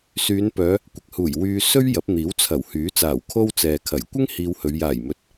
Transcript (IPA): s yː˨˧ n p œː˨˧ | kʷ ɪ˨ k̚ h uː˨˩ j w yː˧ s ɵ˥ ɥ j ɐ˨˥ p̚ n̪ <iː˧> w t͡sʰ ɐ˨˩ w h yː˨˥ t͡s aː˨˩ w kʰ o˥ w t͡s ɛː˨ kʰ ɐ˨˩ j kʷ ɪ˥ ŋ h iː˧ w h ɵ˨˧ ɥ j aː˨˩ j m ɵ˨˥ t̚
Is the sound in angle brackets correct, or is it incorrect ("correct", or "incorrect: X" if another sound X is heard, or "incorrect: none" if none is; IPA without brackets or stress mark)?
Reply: incorrect: iː˨˥